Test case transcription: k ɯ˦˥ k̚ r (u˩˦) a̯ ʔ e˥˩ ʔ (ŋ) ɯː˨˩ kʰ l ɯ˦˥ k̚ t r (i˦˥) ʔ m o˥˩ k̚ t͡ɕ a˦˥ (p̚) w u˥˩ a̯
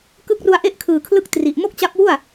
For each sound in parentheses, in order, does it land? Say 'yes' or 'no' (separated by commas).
no, no, no, yes